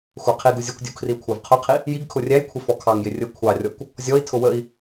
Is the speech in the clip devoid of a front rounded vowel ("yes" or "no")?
yes